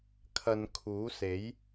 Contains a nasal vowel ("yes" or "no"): no